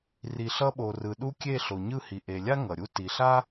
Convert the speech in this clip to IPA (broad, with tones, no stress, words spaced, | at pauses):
ri˨ɬʌ˧ɓo˨rɯ˨ ɗu˧ kʲe˦˨ ɬo˨ɲɯ˦˨hi˨ ʔe˨lʲa˦ ŋʌ˨ɾʲu˦ ti˨ɬa˦